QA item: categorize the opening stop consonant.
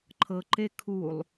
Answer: click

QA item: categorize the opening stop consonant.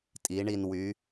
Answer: ejective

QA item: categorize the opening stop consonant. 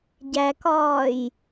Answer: plain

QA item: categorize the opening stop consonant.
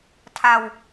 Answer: aspirated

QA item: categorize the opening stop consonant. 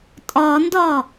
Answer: ejective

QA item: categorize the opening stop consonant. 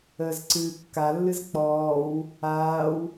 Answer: click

